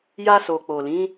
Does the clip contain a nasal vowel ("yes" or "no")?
yes